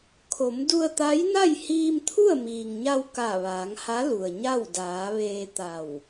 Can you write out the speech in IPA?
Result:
kʰo˩˧m du˧ə̯t̪a˧˥jna˥˨j hiː˧mt̪ʰu˥˨ə̯miː˩ŋɲa˧w ka˧˩ʋaː˩˧ŋha˧˥ lu˩ə̯ɲa˥˨w daː˩˧ʋeː˧t̪a˧˩w

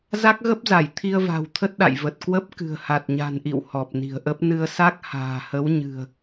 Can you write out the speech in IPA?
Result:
za˦˥k̚ɣə˦˥p̚za˧˩j t̪ʰi˧ə̯va̤˨˩w t̪ʰə˦˥t̚ɗa̰˧˨jvə˨˩t̚ kwə˦˥p̚ kɨ̤˨˩ə̯ha˨˩t̚ɲa̤˨˩nʔḭ˧˨w hɔ˨˩p̚ni̤˨˩ə̯ʔə˦˥p̚ nɨ˧ə̯sa˦˥k̚ ha̤ː˨˩hə˨˦wɲɨ̤˨˩ə̯

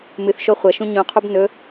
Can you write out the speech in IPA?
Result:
mɨθʃo χʷɐʃũ ɲũqʰub nɵ

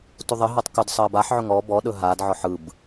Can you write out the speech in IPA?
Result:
tuðˤəɦɔtˤ kɵd sˤəːbaħʕɵ ŋɔ bɔɗɵ ɦadʕɔħ ɯb

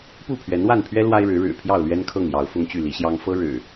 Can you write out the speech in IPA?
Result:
pu˥˨pʰɥɛ˨˦nwa˥˨npʰɥɛ˦ lwa˦ɪ̯ɻɻ̩˨˦ ɻɻ̩˨˩pʰjɑ˥˨ʊ̯ lɥɛ˦nkʰɤ˥˨ŋjɑ˨˦ʊ̯ fʊ˦ŋt͡ɕy˥˨li˨˦ ɕjɑ˦ŋ fɤ˦ɻɻ̩˨˩

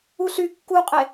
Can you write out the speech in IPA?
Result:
uɬy kːuqʼe

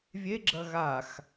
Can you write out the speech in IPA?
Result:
vʲeɡ͡ǁɐ ɣax

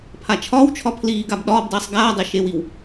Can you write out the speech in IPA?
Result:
pʰat͡ʃʰɒːwt͡ʃʰɒ pʰliːɡab ɗɒːbdˤiːsˤ ɡaːdˤe ʃewiw

